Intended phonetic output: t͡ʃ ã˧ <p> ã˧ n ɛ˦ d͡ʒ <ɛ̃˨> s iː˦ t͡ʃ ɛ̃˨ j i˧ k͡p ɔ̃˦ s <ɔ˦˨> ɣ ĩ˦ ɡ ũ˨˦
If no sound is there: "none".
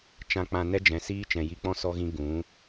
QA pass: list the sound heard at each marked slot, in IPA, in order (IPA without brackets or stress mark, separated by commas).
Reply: k͡p, ɛ̃˨, ɔ˦